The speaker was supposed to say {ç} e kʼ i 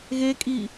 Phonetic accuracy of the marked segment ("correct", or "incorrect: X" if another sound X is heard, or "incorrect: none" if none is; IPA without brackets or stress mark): incorrect: ɣ